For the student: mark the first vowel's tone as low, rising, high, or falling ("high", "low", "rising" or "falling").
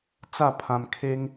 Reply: falling